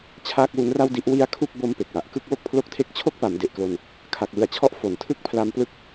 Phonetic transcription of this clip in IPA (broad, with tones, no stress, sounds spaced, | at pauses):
t͡ɕʰ aː˥˩ k̚ w u˦˥ n r a˥˩ w d i˦˥ ʔ w i˦˥ a̯ kʰ u˥˩ k̚ b o˦˥ m p e˨˩ k̚ w a˨˩ ʔ k ɯ˥˩ k̚ w o˥˩ k̚ pʰ l o˦˥ k̚ tʰ e˦˥ k̚ t͡ɕʰ o˦˥ k̚ p a˩˦ m d e˨˩ ʔ k l o˧ n | kʰ a˨˩ k̚ w ɯ˨˩ a̯ t͡ɕʰ ɔ˦˥ ʔ f o˨˩ n tʰ ɯ˦˥ k̚ pʰ l a˧ m p l ɯ˦˥ k̚